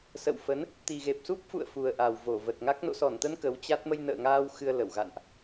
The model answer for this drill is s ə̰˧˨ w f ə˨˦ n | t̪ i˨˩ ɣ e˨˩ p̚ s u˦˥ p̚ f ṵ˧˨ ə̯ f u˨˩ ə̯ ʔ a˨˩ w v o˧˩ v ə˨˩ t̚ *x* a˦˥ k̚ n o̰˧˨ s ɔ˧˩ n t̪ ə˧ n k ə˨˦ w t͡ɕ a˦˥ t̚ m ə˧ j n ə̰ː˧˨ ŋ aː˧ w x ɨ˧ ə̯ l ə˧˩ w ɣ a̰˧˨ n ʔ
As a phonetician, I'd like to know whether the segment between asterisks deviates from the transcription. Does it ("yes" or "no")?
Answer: yes